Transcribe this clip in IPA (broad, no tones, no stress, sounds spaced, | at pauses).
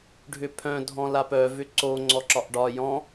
ɖʱ ʏ pʰ œ̃ dʱ ɔ̃ l a p œ v ʏ ǀ o ŋ͡ǀ ɔ ǁ ɒ ʔ ɖ ɒ j ɔ̃